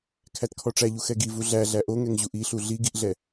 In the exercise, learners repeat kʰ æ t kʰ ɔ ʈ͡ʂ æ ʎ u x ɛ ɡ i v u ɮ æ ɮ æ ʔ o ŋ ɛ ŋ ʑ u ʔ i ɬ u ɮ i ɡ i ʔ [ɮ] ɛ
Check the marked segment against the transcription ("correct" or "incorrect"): correct